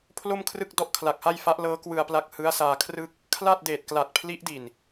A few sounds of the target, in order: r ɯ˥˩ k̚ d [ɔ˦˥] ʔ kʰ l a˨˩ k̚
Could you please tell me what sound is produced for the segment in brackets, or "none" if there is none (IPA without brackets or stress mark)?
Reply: ɔ˦˥